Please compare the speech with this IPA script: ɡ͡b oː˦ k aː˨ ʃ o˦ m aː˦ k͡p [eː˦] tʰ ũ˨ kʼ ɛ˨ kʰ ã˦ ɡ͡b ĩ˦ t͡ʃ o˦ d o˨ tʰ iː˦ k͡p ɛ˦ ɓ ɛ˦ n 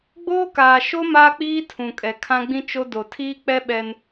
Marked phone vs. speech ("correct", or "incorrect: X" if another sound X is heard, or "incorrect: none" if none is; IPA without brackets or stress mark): incorrect: iː˦